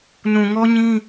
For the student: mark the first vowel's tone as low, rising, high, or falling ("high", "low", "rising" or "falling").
low